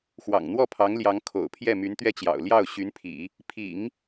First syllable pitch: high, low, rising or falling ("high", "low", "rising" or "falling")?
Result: low